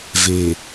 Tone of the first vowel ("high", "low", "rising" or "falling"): low